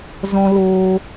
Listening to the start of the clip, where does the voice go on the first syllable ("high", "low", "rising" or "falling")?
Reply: high